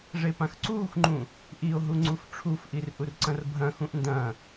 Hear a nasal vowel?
yes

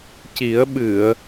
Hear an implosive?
yes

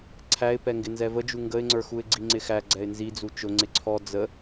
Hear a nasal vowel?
no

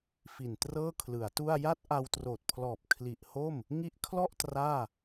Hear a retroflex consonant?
no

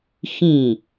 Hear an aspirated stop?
no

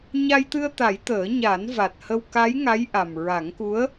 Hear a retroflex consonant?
no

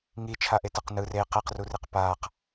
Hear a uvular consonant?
yes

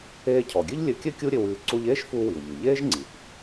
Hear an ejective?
no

